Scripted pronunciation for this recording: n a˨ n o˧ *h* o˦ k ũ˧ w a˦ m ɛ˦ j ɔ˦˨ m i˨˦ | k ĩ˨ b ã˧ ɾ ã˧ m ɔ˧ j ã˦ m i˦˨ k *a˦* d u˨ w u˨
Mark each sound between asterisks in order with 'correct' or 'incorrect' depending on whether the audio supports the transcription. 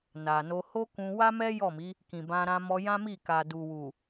correct, incorrect: a˨

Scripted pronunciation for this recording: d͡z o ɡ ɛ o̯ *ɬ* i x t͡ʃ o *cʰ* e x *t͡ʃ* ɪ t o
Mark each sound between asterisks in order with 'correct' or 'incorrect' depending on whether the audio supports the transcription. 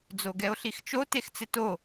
correct, incorrect: t, incorrect: t͡s

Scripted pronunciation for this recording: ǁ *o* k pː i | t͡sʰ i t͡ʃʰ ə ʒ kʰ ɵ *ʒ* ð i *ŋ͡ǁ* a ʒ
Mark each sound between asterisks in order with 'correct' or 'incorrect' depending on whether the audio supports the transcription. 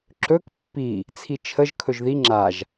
incorrect: ɵ, correct, correct

